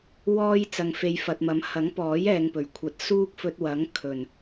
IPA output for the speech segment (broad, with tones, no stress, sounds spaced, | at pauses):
w ɔː˧ j t͡s ɐ˨ ŋ f e˨ j f ɐ˨ t̚ m ɐ˨˥ m h ɐ˨˥ ŋ p ɔː˨˥ j ɛː˨ ŋ p ɵ˨˩ ɥ kʷʰ ɐ˨˥ t̚ s uː˥ k̚ f ɵ˧ t̚ w ɐ˨˥ ŋ kʰ ɵ˨˩ n